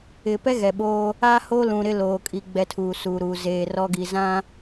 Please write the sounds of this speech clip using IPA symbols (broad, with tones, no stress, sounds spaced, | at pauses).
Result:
ɪ˨ p ɛ˦ ɣ ɛ˨ ɓ oː˦ | a˦ h o˦ l ũ˨ ɾ ɪ˦ l oː˨ kʼ i˨ ɡ͡b ɛ˦ tʰ uː˨ s uː˨ ɾ uː˨ z eː˨ r ɔ˦ ɡ i˨ z ã˦